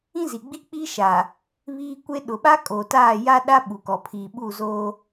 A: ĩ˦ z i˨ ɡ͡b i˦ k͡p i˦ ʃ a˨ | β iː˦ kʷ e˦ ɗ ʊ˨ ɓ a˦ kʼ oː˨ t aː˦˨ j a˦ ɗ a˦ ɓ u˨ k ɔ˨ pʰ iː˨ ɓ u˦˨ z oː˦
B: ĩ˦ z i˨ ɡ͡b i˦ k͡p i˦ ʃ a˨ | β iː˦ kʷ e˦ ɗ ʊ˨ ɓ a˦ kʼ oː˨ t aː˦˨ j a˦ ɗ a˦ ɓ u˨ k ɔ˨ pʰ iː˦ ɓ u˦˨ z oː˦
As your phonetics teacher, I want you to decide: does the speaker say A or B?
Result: A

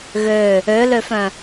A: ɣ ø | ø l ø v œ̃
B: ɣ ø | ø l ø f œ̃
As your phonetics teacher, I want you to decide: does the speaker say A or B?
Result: B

